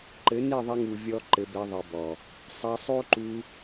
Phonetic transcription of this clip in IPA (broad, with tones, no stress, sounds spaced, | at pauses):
ǃ ɘ˨˦ n e˦˨ ðˤ ɐ˧ ŋ u˨ vʲ ɔ˧ ǃ ɘ˧ b ɛ˧ ðˤ i˨ b ɔ˨ | sˤ ɐ˧ sˤ o˦ ǃ u˧